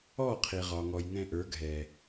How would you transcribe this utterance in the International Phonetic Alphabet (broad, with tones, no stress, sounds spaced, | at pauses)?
ɔ˦˨ qʰ i˨ ʁ ɒ˨ ŋ ɔ˨ j ŋ ɛ̃˧ ʔ ə˞˨˦ ɡʱ ɛ˨